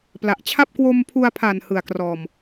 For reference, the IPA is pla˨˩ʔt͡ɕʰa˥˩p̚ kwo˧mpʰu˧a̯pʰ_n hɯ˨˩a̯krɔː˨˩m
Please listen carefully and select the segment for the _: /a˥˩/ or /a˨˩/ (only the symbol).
a˨˩